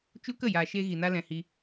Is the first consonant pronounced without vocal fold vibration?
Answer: yes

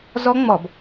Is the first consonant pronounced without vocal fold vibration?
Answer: no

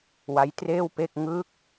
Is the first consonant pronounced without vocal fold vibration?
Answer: no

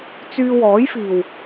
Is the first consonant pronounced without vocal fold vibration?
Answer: yes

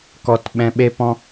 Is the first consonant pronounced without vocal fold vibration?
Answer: yes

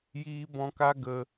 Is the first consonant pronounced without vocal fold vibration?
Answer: no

